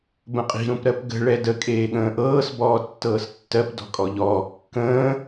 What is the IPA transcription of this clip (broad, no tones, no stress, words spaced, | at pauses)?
bə̃qʼi̤ ɾũpɾɜpɡə̤ ɭɛdə kʼeːɠə̃ːʔɤːs bɔːtːɤːstːɜp dɔ̤kʼɔʎɔː kːə̃ː